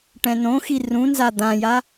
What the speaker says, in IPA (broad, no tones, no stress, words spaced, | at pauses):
ʈɛ̃nõxi rũnza d̪ãja